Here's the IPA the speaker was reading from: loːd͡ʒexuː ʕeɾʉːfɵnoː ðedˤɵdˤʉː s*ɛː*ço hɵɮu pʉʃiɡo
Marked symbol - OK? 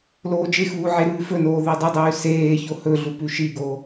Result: no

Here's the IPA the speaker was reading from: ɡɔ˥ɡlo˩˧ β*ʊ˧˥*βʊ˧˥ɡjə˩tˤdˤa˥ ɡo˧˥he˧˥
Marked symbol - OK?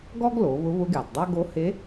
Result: yes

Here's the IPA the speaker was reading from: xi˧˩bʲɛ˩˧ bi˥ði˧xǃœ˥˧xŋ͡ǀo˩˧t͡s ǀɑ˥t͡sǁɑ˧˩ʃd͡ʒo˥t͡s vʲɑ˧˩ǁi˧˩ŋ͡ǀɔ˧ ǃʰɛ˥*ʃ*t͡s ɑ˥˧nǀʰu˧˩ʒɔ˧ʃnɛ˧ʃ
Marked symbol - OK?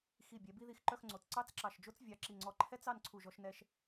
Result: no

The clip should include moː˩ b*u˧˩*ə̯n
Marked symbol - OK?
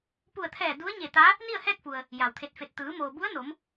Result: no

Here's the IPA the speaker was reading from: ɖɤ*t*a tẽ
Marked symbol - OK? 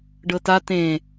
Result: yes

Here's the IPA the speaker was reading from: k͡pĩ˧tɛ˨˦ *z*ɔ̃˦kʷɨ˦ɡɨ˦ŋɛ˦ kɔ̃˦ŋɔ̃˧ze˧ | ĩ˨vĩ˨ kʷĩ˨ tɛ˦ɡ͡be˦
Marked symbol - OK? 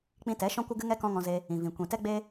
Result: no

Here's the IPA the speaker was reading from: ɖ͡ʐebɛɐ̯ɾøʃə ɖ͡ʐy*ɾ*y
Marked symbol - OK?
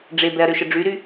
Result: yes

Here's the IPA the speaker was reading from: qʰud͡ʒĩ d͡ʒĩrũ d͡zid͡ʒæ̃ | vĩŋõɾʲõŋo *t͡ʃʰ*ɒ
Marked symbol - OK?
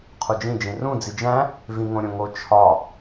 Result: yes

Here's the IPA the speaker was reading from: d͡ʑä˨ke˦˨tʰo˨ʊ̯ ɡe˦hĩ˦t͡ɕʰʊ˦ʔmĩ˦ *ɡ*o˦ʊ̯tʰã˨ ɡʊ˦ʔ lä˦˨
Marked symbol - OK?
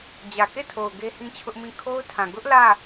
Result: no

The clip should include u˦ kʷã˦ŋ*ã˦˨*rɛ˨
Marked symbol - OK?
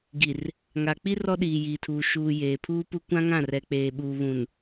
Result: yes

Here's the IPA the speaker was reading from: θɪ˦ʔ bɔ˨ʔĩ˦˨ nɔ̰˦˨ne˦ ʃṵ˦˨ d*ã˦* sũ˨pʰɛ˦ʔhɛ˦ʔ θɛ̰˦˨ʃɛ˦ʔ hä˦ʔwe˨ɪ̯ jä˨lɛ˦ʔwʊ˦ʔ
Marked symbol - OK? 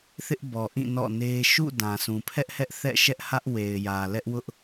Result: no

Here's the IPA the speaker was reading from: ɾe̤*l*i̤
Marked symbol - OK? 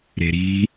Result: no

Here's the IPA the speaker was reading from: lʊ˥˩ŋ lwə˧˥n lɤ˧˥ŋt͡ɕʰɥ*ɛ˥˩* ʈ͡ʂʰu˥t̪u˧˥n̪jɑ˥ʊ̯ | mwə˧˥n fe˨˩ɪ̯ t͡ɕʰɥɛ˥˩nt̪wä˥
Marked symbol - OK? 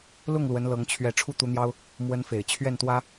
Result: yes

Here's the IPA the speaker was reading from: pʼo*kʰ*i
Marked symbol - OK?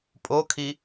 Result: yes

